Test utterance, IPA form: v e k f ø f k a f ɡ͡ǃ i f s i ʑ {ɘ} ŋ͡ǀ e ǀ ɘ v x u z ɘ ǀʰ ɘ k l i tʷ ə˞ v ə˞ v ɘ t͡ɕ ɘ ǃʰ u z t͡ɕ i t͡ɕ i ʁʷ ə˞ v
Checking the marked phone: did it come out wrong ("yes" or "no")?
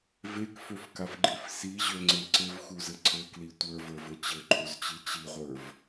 yes